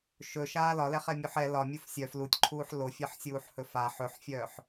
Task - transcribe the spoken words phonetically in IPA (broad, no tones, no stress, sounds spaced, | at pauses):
ʃ ɵ ʃ aː l ɒ l ɛ χ ɛ mʲ u ħ ɛ l ɒ mʲ u f sʲ œ f l u tʲ ǃʰ uː ħ l o fʲ ɛ ħ sʲ uː ħ h ɵ f a ħ ɵ ħ fʲ œː ħ